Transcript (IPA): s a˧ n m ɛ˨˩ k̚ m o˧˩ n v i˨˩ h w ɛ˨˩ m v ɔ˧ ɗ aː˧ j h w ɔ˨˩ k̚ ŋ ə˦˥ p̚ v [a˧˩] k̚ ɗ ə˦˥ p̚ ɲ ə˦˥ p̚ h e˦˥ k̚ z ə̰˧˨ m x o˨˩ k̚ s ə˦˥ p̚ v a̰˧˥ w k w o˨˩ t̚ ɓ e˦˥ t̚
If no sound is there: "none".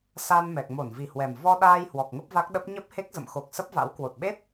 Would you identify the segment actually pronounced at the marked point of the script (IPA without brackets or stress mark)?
a˦˥